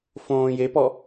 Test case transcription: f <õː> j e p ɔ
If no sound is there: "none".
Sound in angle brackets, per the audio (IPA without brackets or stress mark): õː